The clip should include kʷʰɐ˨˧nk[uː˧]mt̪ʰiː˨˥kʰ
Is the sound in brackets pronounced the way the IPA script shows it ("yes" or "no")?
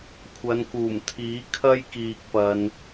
no